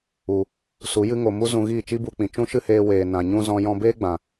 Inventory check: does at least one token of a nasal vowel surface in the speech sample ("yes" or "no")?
yes